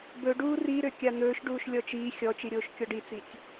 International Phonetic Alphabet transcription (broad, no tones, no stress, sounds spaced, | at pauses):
b ɵ ɖ uː r i ɾ ø kʲ a n̪ ɵː ʃ ɖ uː ʃ lʲ ɔ t͡ʃ iː xʲ ɔ t͡ʃ i ɾʲ oː ʃ kʲ ɔ ɖ i t͡s i tʲ